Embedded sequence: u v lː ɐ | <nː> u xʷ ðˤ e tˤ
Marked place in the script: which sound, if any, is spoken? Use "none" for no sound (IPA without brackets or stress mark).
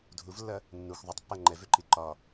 nː